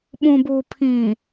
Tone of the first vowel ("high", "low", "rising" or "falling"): low